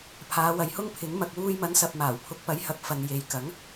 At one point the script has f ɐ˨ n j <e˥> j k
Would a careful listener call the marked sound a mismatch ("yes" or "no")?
yes